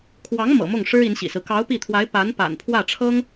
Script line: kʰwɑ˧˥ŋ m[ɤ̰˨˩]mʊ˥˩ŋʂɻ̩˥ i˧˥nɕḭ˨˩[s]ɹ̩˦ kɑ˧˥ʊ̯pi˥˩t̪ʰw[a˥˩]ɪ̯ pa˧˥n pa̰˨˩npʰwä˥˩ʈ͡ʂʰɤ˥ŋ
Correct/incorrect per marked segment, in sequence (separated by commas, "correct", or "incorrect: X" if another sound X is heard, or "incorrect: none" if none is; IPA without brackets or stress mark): correct, correct, incorrect: a˧˥